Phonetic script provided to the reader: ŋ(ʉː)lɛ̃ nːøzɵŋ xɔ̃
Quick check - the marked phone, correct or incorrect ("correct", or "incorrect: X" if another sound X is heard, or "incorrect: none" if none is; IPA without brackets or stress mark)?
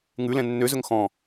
incorrect: ʉ